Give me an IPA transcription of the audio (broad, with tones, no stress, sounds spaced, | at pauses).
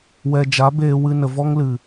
w ɛ˨ d͡ʒ a˨˦ b eː˧ w ɨ˧ n ə˨ v ɔ˦ ŋ l ɨ˨